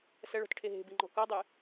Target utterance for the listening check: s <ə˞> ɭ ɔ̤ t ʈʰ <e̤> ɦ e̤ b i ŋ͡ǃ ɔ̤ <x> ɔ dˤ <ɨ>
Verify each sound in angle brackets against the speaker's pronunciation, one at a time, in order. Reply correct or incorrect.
incorrect, incorrect, incorrect, correct

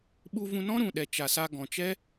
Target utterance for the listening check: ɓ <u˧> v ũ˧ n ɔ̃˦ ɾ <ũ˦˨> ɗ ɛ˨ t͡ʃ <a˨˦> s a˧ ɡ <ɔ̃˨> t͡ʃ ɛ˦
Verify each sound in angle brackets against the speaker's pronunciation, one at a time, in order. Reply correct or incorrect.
correct, incorrect, incorrect, correct

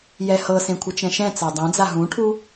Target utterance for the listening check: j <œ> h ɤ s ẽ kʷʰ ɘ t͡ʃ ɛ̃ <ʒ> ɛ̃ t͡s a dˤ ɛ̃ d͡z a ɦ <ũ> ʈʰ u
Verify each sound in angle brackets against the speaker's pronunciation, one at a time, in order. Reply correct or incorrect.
incorrect, incorrect, correct

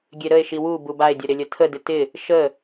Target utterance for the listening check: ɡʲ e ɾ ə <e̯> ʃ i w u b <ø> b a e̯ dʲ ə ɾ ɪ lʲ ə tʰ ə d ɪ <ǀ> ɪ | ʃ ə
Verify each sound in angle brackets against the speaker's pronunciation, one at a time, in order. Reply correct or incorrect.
correct, incorrect, incorrect

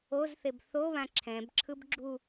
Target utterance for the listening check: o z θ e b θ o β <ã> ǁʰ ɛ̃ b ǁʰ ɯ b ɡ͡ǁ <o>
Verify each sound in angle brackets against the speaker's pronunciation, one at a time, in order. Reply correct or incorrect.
correct, incorrect

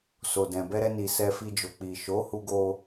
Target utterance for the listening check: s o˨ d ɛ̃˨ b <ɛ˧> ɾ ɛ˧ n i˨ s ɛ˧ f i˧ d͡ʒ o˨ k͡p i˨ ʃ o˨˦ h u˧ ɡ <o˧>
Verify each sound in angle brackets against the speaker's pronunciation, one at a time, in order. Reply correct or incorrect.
correct, correct

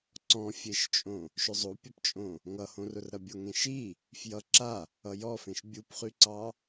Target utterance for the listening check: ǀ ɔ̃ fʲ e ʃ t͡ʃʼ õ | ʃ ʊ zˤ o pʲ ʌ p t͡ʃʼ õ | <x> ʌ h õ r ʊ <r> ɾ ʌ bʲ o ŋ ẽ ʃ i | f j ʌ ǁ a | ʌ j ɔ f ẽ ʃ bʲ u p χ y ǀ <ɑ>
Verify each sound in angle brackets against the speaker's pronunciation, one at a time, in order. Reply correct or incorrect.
incorrect, correct, correct

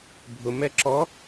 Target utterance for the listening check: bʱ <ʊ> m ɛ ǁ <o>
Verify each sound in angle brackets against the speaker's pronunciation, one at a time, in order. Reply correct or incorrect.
correct, incorrect

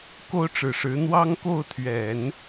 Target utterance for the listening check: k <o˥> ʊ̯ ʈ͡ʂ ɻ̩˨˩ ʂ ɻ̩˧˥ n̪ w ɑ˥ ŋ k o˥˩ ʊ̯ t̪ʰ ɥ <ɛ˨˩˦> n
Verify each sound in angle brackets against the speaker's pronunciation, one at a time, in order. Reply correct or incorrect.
correct, correct

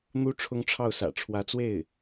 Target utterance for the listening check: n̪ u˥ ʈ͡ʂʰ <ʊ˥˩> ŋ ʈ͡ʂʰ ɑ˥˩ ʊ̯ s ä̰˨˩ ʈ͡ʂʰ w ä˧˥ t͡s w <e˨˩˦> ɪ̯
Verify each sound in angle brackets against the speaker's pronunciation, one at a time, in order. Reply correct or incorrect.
incorrect, incorrect

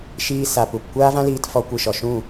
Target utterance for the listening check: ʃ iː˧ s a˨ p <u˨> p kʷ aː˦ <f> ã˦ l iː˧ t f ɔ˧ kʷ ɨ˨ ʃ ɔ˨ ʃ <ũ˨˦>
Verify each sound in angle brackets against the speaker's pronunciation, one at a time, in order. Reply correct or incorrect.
correct, incorrect, incorrect

